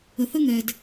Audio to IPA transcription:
ə˨ θ ə˦ ŋ ɛ˨ d

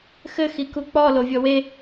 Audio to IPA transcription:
x ɘ x i k u k͡p ɔ l o vʲ ɔ w e

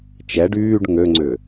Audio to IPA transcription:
t͡ʃ ɛ ɖ yː ɖ ŋ ø ŋ͡ǀ ʏ

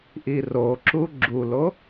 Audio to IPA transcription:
ʔ i r o ǁ u ɡ͡ǁ u l o

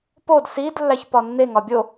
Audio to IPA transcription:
p o d s i d lː æ ç p ɒ nː e ŋ ɒ bʲ o

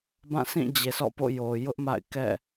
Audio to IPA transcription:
b ã˦˨ s ĩ˦˨ d͡ʑ e˨ s ɔ̰˦˨ p o̰˦˨ j o˨ j ʊ˦ ʔ m a̰˦˨ ɪ̯ k ɛ̰˦˨

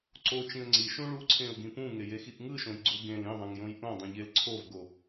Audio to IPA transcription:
ǀ o t͡ʃ ĩ ə̯ ŋ͡ǀ i ʃ ũ ɭ u ǀʰ ẽ ʊ̯ ɡ ĩ p ũ ŋ e j e x i ʔ ŋ ɯ ʃ õ j ɡ͡ǀ u ɡ ẽ l ĩ ðˤ ẽ ŋ j õ j ʔ õ dˤ ĩ ʎ e l ǀʰ o v ɡ o

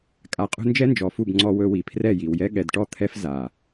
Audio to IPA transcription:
kʼ a˧ qʼ ṳ˦ n d͡ʒ ɛ˦ n d͡ʒ ɔ˨ f u˦˨ b ŋ͡ǀ ɔ˧ w ɵ˧ w i˨ pʰ r ɛ˦˨ j i˨ w j ɛ˧ ɠ ɛ˨ d ʈ ɔ˦˨ t̪ʰ ɛ˦ f z a˨

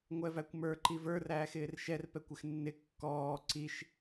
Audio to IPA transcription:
ŋʷ ɛ v æ kʷ m ə˞ ǃ i v ə˞ r æː x ɪː r ʃ ɛ r p ɛ kʷ ɪ x nː ɪ kː ɔː ǀ i ʃ

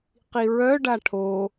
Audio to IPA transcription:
q i ɹ œ ɖ a ʈʰ o

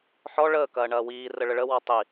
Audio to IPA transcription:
ħ ɔ ɭ əː k ɐː ɳ ɐː w iː r ə ɭ ə ɭ ə w ɔ tˤ i

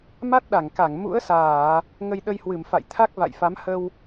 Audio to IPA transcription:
m a˦˥ t̚ ɗ a˧˩ ŋ k a˧˩ ŋ m ṵ˧˥ ə̯ s aː˧˩˨ | ŋ ə˧ j ɗ ə˧ j h w ɨ˧˩ m f a̰˧˨ j t̪ʰ a˦˥ k̚ v a̰˧˨ j f a˨˦ m h ə˧ w

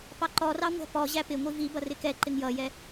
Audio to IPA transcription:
p ɑ ǃ ɔ r ɑ ŋʷ æ̤ p ɔ ʑ æ p ɪ ŋʷ i v i b ʌ r ɪ k ɛ ǃ ɪ ŋ j ʌ j ɛ

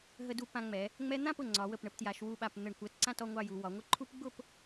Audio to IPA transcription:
ɦ ə˧ d u˧ p ã˧ ŋ͡m ɛ˩˧ | ŋ͡m ɛ˧ n̪ ã˥˧ p ʊ˧˩ ŋ͡ǀ ɒ˩˧ w ə˧˩ p ɳ ə˧ p t j a˩˧ ʃ w u˧˩ ɓ a˧˩ p n̪ ə˧˩ ɳ kʷ ɜ˧ t ǀ ã˥˧ t ɔ˧ ŋʷ ɑ˥˧ j u˩˧ w ɒ˩˧ ŋʷ ə˥˧ ǃʰ u˥ p ɡ͡b ʊ˥˧ p

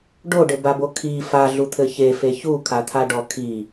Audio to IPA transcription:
ɖ o ɖ ɘ b a b o kʰ i f a ɮ u t̪ʰ ɘ ç e f e ç u kʰ a t̪ʰ a ɖ ɔ kʰ i

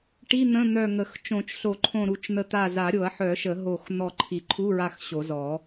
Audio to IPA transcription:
ʈ i˧˥˧ n̪ ə̃˧˥˧ n̪ œ˧˩ ŋ ə˨˩˦ x t͡ʃ õ˨˩˦ t͡ʃ ɬ o˨˩˦ ǃʰ õ˧˩ ɾ u˧˩ t͡ʃ n̪ ə˧˩ t̪ a˧˩ z a˨˩˦ ɾʲ o˨˩˦ ɐ̯ ħ œ˨˩˦ ʃ ə˨˩˦ ɦ o˧˩ x n̪ ɔ˧˩ ǃʰ i˨˩˦ ǃʰ u˧˥˧ ɹ a˧˩ x ɕ o˨˩˦ z ɔ˨˩˦

